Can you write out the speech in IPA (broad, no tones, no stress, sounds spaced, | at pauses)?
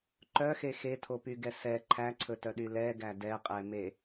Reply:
ǃ œ x e x e tʰ o p y ɡ ɛ s ɛ ǃʰ æ ǀʰ ɵ t œ ɗ y l ɛ ɡ æ d ɛ qʼ ɛ m e